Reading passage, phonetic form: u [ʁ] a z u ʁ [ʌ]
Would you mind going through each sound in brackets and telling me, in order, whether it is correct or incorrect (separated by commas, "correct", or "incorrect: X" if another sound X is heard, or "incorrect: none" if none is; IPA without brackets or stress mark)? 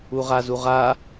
correct, incorrect: a